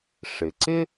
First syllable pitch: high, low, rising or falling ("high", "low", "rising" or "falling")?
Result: low